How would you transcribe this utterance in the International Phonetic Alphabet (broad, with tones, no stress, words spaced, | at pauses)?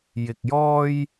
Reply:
jɪ˧k̚ jɔː˥j